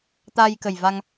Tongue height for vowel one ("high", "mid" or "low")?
low